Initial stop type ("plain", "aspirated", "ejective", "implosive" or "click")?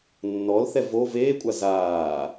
ejective